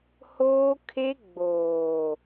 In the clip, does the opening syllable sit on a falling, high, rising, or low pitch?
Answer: high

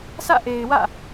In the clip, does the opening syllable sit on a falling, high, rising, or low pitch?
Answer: falling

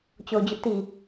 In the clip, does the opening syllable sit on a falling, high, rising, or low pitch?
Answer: low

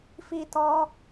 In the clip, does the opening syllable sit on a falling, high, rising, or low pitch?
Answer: high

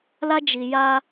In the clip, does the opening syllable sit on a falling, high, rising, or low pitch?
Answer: high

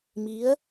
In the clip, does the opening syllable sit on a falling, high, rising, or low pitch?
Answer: rising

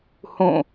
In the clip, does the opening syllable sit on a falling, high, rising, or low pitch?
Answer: falling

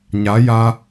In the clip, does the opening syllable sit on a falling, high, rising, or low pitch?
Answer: rising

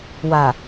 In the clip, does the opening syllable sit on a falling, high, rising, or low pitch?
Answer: low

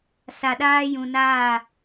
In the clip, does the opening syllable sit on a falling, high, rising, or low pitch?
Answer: low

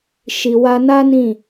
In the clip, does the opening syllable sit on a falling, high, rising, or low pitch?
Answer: low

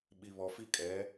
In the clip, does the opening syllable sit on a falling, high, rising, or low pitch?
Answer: high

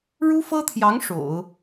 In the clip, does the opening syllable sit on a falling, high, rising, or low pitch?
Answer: high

